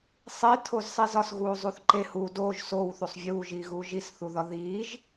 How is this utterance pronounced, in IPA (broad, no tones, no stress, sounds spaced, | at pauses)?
sˤ i tʰ o z sˤ i z ɒ s ɣ uː zˤ u θ ǃ e h u d o ʒ s o w θ u sˤ vʲ uː ʒ iː ɣ uː ʒ i s θ u ð ɒ ð iː ʒ